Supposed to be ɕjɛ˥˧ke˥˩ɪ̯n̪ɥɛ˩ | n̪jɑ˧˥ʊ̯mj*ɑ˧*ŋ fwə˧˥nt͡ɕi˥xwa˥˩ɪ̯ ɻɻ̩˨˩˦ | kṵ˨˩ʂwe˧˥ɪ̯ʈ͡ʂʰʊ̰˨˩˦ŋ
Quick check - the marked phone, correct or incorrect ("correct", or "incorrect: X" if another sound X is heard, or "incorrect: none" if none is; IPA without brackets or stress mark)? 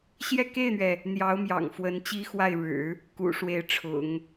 incorrect: ɑ̰˨˩